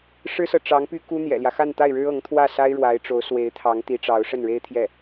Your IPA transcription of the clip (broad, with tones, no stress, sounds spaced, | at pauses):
ʂ ɻ̩˥ s ɤ˨ ʈ͡ʂ ɑ˧˥ ŋ p y˥ k u˥ n̪ j ɛ̰˨˩ l j ä˦ x a˥˧ n t̪ a˥˩ ɪ̯ ɻ ɻ̩˥ ɤ˧˥ ŋ t̪ʰ w ä˥˩ s a˥ ɪ̯ ɻ w a˧˥ ɪ̯ ʈ͡ʂ o˧˥ ʊ̯ s w e˧˥ ɪ̯ t̪ʰ ɑ˧˥ ŋ t̪ i˧˥ ʈ͡ʂ ɑ˧˥ ʊ̯ ʂ ə˥˩ n ɻ e˥ ɪ̯ t̪ʰ j ɛ˥˩